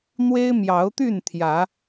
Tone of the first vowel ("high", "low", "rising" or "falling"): high